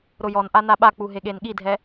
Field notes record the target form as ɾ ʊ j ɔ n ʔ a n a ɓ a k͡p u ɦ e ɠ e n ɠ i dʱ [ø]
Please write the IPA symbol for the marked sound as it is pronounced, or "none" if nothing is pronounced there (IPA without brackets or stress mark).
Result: ɛ